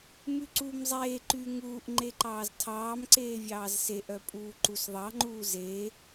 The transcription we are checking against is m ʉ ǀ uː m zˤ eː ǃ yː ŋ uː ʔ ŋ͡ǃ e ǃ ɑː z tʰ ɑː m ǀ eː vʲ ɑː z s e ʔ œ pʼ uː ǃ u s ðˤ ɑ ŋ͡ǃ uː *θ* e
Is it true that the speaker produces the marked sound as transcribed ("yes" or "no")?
no